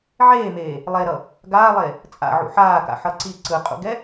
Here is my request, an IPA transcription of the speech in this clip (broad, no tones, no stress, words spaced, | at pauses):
ʕeːmeː | lˠeɾʌ | ɡaːlˠe | t͡sʼa̰ʕṵ ħaːka̰ħʌ ǀi ǀɯqʼṵɡɛ